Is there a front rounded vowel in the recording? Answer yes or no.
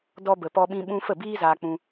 no